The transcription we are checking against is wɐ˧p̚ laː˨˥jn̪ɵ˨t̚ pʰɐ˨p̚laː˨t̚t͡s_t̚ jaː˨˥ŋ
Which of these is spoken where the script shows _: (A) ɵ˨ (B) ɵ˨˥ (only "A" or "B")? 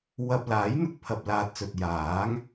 A